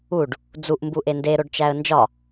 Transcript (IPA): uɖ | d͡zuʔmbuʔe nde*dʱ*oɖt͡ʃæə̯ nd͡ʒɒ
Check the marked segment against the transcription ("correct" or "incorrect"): incorrect